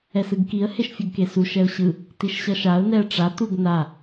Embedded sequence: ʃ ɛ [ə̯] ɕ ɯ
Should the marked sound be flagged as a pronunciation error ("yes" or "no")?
yes